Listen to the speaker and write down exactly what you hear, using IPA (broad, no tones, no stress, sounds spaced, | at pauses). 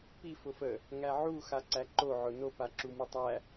p i f ʊ f ə | ŋ æ ʕ u x a ǀ æ ǃ o ʕ ʊ n o p a ǁ u m u tˤ æ